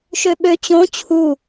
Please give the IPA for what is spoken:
ʃøɓø t͡ɕõ t͡ɕʰu

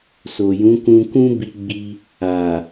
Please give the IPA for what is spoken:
so˨jũ˨˦kũ˧kũ˦ bi˦ɡ͡bi˦ | a˨

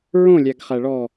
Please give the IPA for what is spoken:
ɹõlʲæɡχæɭɔ

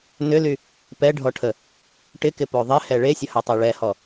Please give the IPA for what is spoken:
nʏly | pɛɖʱɔʈʰə | ʈɪkɪpo ðˤɪhɛ ɭesʲɐhøtˤe ɭɛhɔ

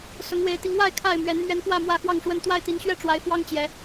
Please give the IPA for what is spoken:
sʊ˨˦ŋwe˨˦ɪ̯t̪i˨˦ŋ wa˥˨ɪ̯ kʰa˥˨ɪ̯mɥɛ˨˦n mɥɛ˨˦n pwä˥˨mwä˥˨xwɑ˥˨ŋʂwə˥˨n t̪wa˥˨ɪ̯t̪i˨˦nɕɥɛ˥˨ʈ͡ʂwa˨˦ɪ̯ fwɑ˦ŋt͡ɕjɛ˨˦

